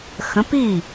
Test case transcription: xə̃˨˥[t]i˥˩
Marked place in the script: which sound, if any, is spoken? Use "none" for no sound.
p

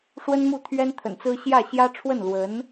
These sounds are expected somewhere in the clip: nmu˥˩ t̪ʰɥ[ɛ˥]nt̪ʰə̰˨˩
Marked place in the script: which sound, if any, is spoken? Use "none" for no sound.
ɛ˥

